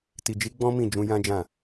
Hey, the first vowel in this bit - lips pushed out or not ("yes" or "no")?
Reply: no